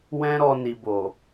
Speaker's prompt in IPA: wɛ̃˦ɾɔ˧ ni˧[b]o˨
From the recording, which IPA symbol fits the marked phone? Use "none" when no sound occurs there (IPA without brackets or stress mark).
b